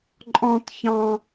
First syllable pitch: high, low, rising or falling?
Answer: high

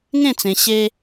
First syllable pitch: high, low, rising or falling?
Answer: falling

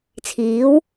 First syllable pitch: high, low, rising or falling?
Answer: rising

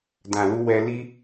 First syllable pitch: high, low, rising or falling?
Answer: low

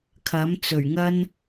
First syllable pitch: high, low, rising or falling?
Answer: rising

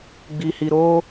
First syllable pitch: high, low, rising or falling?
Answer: low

